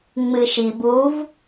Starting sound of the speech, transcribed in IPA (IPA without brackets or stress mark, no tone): ŋ͡m